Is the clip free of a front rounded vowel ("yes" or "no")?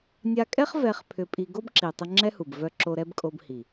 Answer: no